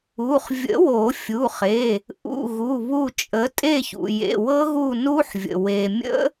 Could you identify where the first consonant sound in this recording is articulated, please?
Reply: uvular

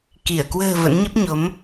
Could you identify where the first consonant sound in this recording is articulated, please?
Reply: velar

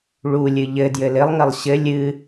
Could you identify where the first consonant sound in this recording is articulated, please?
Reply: retroflex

